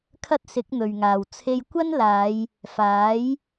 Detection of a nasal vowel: absent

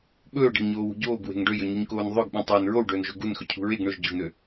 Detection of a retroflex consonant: present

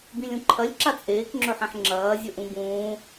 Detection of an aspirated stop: present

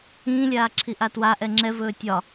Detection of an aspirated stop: present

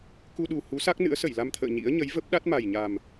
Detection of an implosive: present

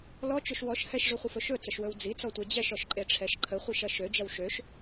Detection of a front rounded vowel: present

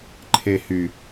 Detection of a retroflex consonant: absent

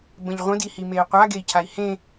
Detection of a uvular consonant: present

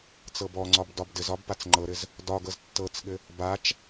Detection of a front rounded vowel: absent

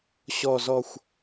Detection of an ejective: absent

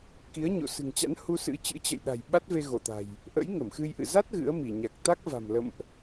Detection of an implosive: present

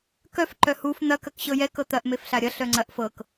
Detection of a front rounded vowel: present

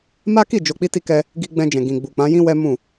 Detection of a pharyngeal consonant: absent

